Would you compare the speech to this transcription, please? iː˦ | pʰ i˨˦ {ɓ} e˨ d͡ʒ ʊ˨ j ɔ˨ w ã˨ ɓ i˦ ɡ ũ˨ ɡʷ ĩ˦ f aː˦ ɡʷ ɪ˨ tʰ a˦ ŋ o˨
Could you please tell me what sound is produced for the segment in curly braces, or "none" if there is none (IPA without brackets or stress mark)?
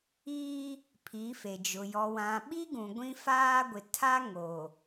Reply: f